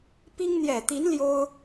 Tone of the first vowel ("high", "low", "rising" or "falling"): high